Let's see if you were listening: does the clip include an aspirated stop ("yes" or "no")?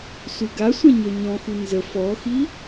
no